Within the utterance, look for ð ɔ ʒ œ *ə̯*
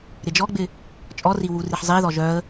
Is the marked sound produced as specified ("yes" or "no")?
yes